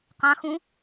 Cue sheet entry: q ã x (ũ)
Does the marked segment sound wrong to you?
no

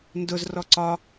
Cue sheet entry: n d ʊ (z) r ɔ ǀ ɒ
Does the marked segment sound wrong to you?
no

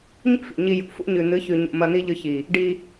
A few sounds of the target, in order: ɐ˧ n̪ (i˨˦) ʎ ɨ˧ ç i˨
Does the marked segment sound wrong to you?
yes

